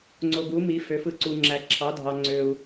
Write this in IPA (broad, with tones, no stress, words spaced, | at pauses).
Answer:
ŋ͡ǀo˨ɡu˩˥mi˩˥ fø˩˥fɯ˨ǀu˨ ŋ͡ǁæ˨ǁʰɑ˩˥dʱɑ˨ ŋ͡ǀø˨u̯